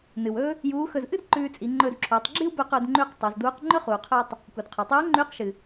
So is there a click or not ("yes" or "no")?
yes